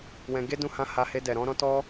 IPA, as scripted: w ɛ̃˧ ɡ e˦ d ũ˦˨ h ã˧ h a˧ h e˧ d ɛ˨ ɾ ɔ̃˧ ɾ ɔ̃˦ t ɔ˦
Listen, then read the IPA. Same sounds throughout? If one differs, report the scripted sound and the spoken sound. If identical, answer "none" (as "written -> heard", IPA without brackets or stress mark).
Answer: none